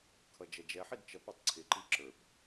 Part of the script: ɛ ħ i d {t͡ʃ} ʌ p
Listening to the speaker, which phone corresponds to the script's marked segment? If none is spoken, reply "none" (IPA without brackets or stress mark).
t͡ʃ